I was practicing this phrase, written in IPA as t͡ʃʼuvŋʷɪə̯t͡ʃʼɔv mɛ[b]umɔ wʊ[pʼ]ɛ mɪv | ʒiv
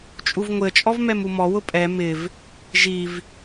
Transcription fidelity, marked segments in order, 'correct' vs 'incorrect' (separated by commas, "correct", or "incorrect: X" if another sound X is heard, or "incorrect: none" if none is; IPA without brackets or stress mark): incorrect: m, correct